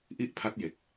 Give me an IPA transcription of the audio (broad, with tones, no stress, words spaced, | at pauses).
ʔi˥˩ʔpʰa˦˥t̚je˨˩k̚